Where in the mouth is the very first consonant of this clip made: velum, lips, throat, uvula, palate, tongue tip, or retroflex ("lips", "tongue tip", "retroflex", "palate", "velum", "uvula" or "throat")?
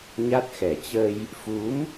palate